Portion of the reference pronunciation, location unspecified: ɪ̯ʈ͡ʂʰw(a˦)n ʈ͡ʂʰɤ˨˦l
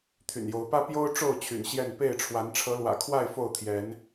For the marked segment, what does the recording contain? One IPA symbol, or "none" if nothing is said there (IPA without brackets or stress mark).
a˨˦